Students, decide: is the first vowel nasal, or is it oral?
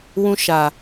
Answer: nasal